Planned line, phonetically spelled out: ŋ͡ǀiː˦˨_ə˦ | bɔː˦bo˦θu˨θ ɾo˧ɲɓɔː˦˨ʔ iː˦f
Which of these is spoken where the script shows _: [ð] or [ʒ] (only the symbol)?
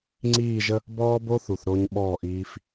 ʒ